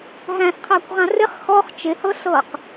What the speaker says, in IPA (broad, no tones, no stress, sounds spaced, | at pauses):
ɦ æ̃ s qʰ æ kʷ ʁ ã r ɪ χ x ɔ χ t͡ʃ ɪ h ɤ ɬ ɤ q